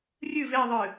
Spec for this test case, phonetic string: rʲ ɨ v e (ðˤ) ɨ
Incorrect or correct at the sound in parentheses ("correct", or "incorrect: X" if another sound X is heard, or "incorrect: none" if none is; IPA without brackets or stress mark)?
correct